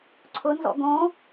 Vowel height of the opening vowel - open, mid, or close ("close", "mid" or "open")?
close